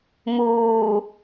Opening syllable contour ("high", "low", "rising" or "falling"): low